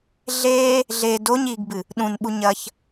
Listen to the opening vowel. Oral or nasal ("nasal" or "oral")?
oral